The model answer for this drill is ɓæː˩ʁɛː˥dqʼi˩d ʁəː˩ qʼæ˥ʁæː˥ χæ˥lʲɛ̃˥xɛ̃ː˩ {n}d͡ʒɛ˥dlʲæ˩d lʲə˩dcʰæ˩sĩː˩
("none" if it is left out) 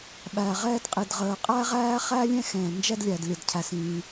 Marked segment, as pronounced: n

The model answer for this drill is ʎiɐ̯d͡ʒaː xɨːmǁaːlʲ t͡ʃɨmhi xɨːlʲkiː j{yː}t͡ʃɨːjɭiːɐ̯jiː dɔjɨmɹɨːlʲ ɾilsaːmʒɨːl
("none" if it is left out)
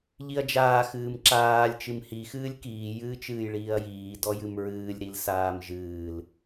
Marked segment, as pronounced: ɨː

